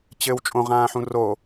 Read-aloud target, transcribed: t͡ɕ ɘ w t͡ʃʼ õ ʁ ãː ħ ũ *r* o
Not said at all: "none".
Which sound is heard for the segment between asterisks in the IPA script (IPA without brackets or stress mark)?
r